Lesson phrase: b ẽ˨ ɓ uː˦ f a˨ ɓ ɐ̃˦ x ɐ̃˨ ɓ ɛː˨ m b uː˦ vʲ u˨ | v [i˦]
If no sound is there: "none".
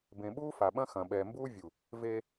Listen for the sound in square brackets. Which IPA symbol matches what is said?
e˦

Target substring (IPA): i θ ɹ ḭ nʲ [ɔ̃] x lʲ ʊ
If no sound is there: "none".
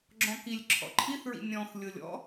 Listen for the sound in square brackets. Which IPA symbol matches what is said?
ɔ̃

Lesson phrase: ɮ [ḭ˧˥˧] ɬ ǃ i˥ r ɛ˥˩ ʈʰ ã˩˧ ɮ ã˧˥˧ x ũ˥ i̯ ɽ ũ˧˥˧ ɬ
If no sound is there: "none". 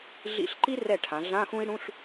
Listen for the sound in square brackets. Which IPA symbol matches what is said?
ḭ˧˥˧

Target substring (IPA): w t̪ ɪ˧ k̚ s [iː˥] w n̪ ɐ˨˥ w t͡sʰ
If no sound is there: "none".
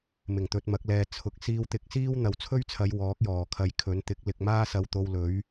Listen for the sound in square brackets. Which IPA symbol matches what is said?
iː˥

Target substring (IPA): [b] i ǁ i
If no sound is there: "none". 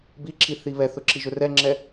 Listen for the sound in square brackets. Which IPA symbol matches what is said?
b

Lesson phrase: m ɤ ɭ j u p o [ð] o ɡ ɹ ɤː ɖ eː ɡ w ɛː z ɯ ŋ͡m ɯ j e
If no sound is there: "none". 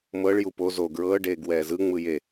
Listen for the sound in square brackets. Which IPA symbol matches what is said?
z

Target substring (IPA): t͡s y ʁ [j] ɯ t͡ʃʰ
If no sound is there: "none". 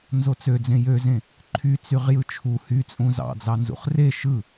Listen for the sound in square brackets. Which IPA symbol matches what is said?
j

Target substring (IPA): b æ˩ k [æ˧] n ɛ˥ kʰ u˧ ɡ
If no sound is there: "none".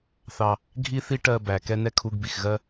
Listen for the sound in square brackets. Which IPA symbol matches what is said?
ɛ˧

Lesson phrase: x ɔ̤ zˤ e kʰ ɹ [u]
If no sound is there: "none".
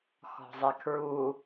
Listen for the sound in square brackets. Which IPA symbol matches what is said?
u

